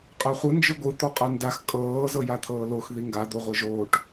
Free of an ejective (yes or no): no